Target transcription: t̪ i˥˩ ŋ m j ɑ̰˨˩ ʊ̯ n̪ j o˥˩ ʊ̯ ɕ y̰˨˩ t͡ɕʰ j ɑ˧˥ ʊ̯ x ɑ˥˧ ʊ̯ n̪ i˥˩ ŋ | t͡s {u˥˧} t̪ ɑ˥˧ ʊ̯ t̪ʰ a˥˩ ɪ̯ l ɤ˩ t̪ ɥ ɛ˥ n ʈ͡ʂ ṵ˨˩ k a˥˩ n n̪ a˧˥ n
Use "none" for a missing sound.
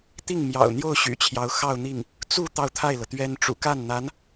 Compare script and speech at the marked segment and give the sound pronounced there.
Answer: u˥˧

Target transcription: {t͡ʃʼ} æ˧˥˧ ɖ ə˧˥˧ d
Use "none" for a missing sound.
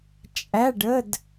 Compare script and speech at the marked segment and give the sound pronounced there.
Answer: t͡ʃʼ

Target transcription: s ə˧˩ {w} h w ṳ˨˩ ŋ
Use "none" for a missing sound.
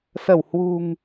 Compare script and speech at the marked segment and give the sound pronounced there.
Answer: w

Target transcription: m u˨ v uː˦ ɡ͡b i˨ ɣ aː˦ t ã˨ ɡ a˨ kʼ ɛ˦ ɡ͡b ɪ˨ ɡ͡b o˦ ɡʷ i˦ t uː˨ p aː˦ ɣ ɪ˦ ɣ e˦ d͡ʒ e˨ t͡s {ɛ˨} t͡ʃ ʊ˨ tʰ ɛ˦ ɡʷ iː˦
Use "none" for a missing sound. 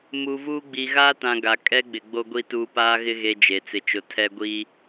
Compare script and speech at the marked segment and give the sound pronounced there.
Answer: ɪ˨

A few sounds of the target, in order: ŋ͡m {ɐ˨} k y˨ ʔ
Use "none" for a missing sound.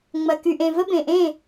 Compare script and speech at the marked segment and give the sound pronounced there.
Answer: ɐ˨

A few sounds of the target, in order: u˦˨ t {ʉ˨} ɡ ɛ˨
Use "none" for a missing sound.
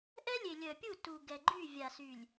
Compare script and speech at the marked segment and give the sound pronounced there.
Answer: u˨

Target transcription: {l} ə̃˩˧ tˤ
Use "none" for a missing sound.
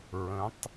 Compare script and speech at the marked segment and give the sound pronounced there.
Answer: ɹ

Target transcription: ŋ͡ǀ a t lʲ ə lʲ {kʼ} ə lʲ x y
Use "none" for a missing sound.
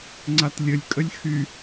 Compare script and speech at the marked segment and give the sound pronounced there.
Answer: kʼ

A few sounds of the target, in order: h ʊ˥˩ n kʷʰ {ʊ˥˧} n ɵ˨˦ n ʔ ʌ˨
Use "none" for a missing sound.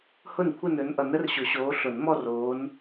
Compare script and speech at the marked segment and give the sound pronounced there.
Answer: ə˥˧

